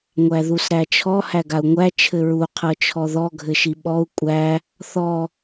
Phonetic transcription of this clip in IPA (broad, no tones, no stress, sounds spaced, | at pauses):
ŋʷ æ ð u s ɾ æ t͡ʃʰ ɔ h æ ɡ a u̯ ŋʷ æ t͡ʃʰ ɘ ɹ u qʰ ɤ t͡ʃʰ ɔ ð ɔ ɡʱ ɘ ʃ i ɓ ɔ u̯ kʷʼ æ | θ ɔ